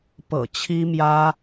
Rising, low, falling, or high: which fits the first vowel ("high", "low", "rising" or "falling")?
low